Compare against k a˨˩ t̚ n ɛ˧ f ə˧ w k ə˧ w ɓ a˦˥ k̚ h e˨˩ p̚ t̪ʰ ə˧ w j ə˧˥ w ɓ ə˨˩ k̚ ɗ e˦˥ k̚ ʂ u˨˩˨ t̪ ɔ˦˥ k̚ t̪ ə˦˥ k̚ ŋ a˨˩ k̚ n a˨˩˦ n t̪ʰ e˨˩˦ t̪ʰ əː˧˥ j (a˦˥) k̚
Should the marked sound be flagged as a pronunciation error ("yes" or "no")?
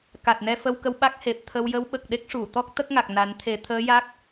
no